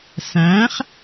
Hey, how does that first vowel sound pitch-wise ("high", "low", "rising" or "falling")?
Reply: rising